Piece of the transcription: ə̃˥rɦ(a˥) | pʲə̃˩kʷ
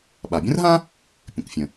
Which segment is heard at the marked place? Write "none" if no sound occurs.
ã˥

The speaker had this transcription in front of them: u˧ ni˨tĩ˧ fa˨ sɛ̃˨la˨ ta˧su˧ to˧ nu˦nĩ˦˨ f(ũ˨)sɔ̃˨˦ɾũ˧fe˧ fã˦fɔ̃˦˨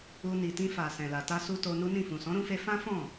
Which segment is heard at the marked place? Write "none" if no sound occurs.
ũ˨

